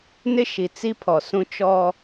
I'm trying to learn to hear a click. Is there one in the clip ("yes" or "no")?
no